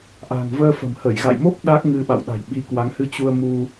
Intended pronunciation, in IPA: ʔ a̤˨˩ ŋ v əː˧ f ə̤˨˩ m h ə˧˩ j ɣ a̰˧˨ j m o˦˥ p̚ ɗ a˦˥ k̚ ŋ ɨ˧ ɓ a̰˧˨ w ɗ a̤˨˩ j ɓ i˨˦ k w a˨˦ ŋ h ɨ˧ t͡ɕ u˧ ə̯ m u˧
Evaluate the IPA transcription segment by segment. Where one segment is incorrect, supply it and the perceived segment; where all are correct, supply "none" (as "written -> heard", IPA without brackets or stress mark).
none